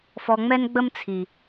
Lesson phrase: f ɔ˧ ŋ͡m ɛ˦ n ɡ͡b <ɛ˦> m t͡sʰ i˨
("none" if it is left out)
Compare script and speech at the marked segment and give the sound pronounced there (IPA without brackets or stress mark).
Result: ə˦